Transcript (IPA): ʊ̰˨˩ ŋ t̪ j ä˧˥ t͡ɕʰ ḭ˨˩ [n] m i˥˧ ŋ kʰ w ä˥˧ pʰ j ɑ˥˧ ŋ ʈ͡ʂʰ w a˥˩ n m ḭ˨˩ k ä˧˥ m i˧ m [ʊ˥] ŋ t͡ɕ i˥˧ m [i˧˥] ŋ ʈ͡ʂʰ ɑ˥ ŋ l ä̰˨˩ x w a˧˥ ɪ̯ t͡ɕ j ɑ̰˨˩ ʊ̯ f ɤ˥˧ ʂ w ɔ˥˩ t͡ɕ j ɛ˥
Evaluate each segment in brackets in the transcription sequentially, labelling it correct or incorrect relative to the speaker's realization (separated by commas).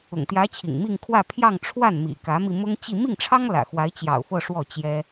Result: incorrect, correct, incorrect